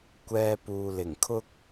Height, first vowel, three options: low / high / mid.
mid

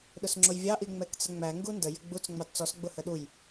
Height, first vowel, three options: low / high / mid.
high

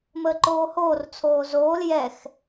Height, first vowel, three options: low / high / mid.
mid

